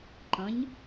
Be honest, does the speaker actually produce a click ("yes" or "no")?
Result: yes